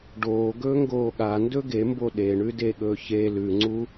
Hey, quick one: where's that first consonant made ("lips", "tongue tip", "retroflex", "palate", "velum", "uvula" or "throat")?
retroflex